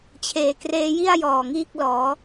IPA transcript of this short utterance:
t͡ɕʰ eː˨˩ k r eː˦˥ j i˥˩ a̯ j ɔː˨˩ ŋ iː˥˩ k̚ l ɔː˩˦

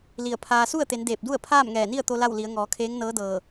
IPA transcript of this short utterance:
l i˧˩ ə̯ pʰ aː˧ s u˥˨ ə̯ t̪ e˩˧ n d eː˧˩ p̚ d u˥˨ ə̯ pʰ aː˥˨ m ŋ ɛː˧˩ n i˥˨ ə̯ t̪ o˧ l a˥˨ w l i˩˧ ə̯ ŋ ɔː˩˧ kʰ eː˧˥ ŋ n ɤː˧˥ d ɤː˧˩

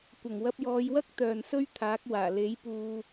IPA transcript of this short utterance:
kʷ ɐ˨˩ ŋ w ɐ˧ p̚ j ɔː˨˧ j w ɐ˥ k̚ t̪ œː˨ n s ɵ˥ ɥ t̪ʰ aː˨˥ k̚ w aː˨˩ l e˨˥ j p uː˧

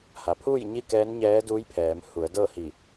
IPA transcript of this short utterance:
h a˩ pʰ uː˥˨ j ɲ i˥˨ k ɛː˧˥ n ɲ ɛː˧˥ d uː˧˥ j pʰ ɛː˩˧ m h u˩˧ ə̯ d ɤː˥˨ h i˧˩

